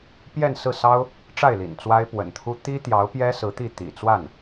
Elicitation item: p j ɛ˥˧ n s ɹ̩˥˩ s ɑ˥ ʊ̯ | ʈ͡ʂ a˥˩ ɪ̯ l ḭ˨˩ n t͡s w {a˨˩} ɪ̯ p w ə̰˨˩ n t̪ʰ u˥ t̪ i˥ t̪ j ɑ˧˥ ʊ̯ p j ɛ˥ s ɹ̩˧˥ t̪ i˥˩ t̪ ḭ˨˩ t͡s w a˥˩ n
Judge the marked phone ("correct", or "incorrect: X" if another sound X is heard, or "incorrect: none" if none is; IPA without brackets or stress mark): incorrect: a˥